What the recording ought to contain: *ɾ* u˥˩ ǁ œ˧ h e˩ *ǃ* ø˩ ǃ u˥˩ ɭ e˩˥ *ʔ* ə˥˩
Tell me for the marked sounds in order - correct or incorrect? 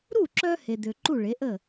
correct, incorrect, correct

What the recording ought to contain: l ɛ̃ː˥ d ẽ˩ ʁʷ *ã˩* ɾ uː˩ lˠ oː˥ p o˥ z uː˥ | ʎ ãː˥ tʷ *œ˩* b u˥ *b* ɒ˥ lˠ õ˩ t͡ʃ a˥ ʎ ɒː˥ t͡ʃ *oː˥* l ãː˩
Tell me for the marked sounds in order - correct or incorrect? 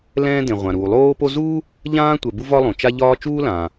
correct, incorrect, incorrect, incorrect

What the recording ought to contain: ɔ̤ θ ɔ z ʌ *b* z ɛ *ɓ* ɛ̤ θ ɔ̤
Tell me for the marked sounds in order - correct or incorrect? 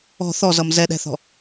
incorrect, incorrect

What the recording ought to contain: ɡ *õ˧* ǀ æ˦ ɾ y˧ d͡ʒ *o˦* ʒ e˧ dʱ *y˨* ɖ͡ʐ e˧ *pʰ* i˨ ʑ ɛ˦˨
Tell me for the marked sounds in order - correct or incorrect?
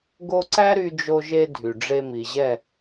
incorrect, incorrect, correct, incorrect

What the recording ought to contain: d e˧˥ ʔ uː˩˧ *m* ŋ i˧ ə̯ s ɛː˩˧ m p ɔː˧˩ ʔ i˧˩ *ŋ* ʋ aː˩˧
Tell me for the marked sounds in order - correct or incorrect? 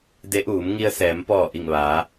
correct, correct

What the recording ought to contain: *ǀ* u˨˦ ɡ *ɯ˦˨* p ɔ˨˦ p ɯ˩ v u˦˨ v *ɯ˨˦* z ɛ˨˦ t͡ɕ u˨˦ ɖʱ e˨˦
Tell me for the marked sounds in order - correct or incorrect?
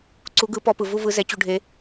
correct, incorrect, correct

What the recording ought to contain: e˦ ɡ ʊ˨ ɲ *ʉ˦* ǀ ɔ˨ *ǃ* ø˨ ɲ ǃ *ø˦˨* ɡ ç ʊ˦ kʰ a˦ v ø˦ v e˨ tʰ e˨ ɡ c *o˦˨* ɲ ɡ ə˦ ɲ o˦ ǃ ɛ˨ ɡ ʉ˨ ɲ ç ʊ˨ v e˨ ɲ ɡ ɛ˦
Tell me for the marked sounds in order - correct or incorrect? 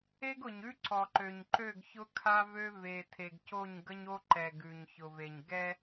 correct, correct, correct, correct

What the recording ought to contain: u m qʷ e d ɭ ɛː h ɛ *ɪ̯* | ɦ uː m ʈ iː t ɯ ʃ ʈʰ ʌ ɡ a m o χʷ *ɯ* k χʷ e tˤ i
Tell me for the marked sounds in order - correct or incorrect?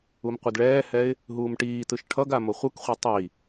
correct, correct

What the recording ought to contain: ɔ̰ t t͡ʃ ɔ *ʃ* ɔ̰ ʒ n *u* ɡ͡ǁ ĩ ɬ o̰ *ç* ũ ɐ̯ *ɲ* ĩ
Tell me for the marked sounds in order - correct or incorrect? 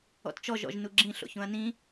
incorrect, correct, correct, incorrect

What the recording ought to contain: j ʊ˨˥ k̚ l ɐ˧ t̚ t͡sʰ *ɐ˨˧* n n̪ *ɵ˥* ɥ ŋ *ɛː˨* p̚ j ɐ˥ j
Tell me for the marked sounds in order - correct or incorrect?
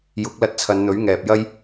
correct, incorrect, correct

